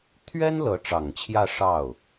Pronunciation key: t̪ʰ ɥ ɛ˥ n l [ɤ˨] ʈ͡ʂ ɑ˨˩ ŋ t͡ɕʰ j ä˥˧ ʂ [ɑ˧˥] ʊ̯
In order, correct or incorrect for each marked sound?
incorrect: ɤ˧˥, incorrect: ɑ˥˩

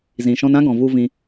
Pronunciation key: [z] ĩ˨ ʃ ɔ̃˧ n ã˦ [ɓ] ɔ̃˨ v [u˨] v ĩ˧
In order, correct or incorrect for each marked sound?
correct, incorrect: ɡ, incorrect: u˦

